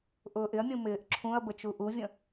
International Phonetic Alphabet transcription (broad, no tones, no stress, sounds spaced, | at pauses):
ʔ ʊː ʔ ɪ ɐ̯ mʲ ũ m ɪː ʔ ǁʰ ũ ɐ̯ b ə t͡ʃ u ʔ u vʲ ə̃